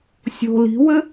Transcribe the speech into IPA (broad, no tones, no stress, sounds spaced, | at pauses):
sʲ o̤ l i̤ w ɘ